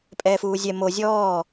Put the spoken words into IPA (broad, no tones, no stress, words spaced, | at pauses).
pʼɛːfuːzʲɛ mo zʲɔː